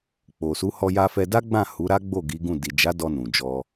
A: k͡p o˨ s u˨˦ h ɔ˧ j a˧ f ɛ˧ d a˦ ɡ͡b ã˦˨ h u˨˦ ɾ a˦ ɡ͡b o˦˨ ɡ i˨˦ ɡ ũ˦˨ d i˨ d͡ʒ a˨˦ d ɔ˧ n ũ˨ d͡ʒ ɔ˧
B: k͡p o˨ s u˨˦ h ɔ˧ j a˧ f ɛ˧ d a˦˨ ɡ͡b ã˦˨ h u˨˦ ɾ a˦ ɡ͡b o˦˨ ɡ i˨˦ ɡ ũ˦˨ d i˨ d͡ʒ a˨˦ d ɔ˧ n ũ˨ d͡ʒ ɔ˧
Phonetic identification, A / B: A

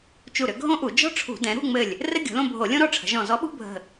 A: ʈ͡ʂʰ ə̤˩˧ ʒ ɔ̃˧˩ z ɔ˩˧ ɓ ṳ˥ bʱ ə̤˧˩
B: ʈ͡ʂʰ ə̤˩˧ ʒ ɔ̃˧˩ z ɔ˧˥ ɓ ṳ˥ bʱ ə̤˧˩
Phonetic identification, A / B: B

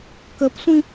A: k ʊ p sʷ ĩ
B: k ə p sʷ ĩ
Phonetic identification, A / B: B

